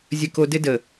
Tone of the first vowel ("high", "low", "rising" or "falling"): high